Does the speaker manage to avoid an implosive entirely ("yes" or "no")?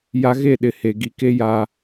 no